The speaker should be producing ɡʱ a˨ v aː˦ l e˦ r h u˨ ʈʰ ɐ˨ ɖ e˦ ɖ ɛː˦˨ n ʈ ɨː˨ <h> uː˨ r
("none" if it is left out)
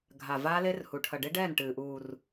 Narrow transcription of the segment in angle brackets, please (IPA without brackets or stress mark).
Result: ʔ